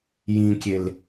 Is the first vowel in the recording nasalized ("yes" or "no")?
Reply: yes